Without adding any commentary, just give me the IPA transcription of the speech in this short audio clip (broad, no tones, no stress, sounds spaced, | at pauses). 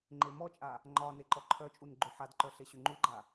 ŋ͡ǃ e m ɔ t͡ʃʼ a | ŋ͡ǃ ɒ n e ǃ ɔ ǃʰ œ t͡ʃʼ u n ɡ͡ǃ ʏ ħ a d ǃ œ ɬ e ɕ ʏ ŋ͡ǃ u ɡ͡ǃ a